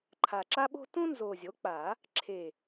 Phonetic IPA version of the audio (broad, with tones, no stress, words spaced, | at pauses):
ǃʰa˨˩ǁa˥ɓo̤˥ tũ˥nzo˨˩ zʲo˩˥k͡pa˨˩˦ | ǁʰe˨˩